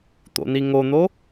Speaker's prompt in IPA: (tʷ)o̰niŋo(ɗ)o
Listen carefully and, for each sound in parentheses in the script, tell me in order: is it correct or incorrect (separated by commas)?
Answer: incorrect, incorrect